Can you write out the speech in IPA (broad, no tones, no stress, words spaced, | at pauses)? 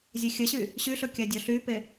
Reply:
zʲexʲəɕy | ɕyɬɵ kʲadʲɔɬype